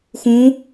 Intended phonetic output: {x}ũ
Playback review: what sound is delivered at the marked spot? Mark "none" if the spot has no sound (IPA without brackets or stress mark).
x